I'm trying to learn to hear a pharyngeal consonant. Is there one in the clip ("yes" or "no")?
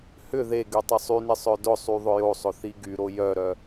no